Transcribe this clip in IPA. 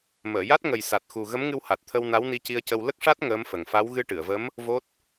məː˨˩˨ja˦˥t̚ ŋə˨˩jsa˨˩t̚xu˨˩ ɣə˧˥mŋɨ˧w ha˨˩t̚t̪ʰə˧w na˧˥wni˧ci˧ə̯cə˧w lə˦˥k̚ʂa˦˥t̚ ŋəː˧˥m fə˨˩ŋfa˧˥w ɣɨ˧ʈɨ˨˩˨ə̯və˧˥m | vo˦˥t̚

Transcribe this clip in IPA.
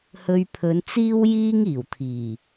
hɵ˧ɥpʰɵ˨˧nt͡siː˥wjiː˥ŋ iː˨˩wt̪ʰiː˨˩

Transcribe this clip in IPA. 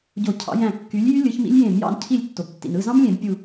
ɟo˧˩cʰɑ̰˨˦ jæ̃˧˩kːy˨˦lʲjy˦˥ lʲɯ˨˦çmḭ˦˥lʲjẽ˧˩˧mjɑ̰˥˨n cʰi˧˩lʲ tːo˩btːḭ˩nɯ˥˨zɑ̃˦˥m lʲẽ˧˩˧bpʲu˧˩

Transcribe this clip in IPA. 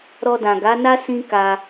ɾɔ˧dã˨ɡa˨˦na˦ sĩ˦ka˧

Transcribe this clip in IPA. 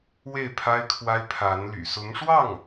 we˥˩ɪ̯ pʰa˥ɪ̯kʰwa˥ɪ̯ pʰa˧˥nly̰˨˩ sʊ˧˥ŋʂwɑ˥˩ŋ

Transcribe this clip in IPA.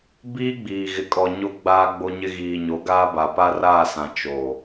biː˦ɡ͡biː˨ɣɪ˨kʼɔ˨ ɲo˦ ɡ͡baː˦ ɡ͡bo˦ɲɪ˦ ɣiː˨ɲo˨˦ɡaː˦ba˨ pa˦raː˦˨sã˨ t͡ʃo˨

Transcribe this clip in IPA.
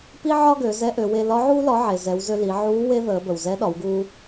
pi˥ʕɒ˥ɡø˩˧ zɛ˧˥ʔø˩˧we˧ lɒ˧˥ʕuː˥ lɒ˧˥ ʕe˩zɛ˩˧wzø˧ li˩˧ ʕuː˧˥ we˥ðəː˩˧ bə˩w zɛ˧˥ɗɒ˩˧wɡuː˧

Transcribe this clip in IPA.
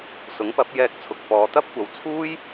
sʊ˨˥ŋpɐ˨˥p̚jɛː˧k̚t͡sʰʊ˨k̚ fɔː˨t̪ɐ˥p̚kʷɐ˨˧wt͡sʰuː˥j

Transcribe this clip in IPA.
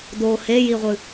do hejiʁʷɨ

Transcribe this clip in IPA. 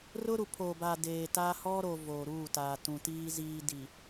rʊ˦ɾu˨pʰoː˨baː˨ deː˨taː˦ hɔ˦ɾo˨ voː˨ɾuː˦˨taː˨ tũ˨tiː˦ziː˦ di˨

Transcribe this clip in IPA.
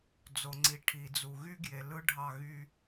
d͡zo˨ŋ͡ǀi˨ ʈʰi˨d͡zu˨ ɣy˦ɡje˨ lɯ˦ɖʱɑ˦˨ɣy˦

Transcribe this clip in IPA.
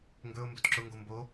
ŋɡɵʊ̯ mbɵtǁʊŋɡo mbo

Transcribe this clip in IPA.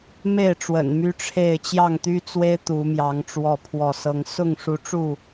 me˥˨ɪ̯ʈ͡ʂwə̰˨˩n my˦ʈ͡ʂʰe˥˨ɪ̯ t͡ɕjɑ˥˨ŋt̪y˦t͡swe˦ɪ̯ t̪u˨˦mjɑ˨˦ŋ ʈ͡ʂwɔ˥˨pʰwɔ˥˨sɤ˦ŋ sʊ˥˨ŋʂu˨˦ʈ͡ʂu˥˨

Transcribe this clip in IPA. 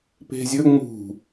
pe̤zʲɵ ŋ͡mṳ

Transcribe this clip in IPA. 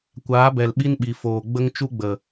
kʷaː˨˦bɛ˨lɓi˦nɓi˨ foː˨ɡ͡bə˦ŋ t͡ʃu˦ɡ͡bə˨

